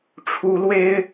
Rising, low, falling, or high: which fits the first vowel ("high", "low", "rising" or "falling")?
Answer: rising